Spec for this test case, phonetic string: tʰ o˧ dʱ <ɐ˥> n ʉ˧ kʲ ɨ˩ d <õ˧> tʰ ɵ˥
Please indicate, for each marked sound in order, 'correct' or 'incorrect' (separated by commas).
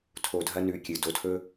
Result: correct, incorrect